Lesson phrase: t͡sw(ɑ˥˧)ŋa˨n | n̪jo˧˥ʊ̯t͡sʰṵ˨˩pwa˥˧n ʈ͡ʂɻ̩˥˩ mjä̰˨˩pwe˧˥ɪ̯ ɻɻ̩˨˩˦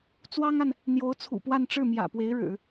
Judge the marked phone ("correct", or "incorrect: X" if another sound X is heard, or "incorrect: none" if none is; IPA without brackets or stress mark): incorrect: ɑ˥